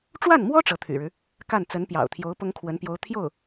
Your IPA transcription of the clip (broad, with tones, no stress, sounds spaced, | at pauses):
ʈ͡ʂ w a˥˩ n m w ɔ˥ ʈ͡ʂ ɤ˧˥ t̪ʰ y̰˨˩ ɻ ɻ̩˦ | k a˥˩ n t͡s ə˧˥ n p j ɑ̰˨˩ ʊ̯ t̪ʰ j o˧˥ ʊ̯ p ʊ˥ ŋ kʰ w ə˧˥ n p j o˧˥ ʊ̯ t̪ʰ j o˥˩ ʊ̯